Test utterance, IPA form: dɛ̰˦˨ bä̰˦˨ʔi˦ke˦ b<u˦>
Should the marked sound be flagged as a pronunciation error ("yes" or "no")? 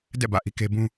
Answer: yes